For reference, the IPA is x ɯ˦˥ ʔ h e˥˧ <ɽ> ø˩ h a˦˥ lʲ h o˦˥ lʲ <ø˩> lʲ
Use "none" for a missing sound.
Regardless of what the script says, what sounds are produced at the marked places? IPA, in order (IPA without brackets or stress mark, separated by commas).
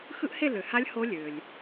l, ø˩